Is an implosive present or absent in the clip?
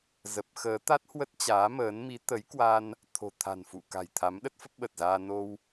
present